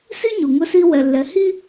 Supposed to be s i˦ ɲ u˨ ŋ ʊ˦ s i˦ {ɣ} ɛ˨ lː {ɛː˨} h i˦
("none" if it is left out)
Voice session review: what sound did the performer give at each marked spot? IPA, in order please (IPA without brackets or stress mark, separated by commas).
w, ɛ˨